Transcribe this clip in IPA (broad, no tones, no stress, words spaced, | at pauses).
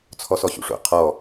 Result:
t͡sʰɔsɔɕṵʂo̰ qʰɔ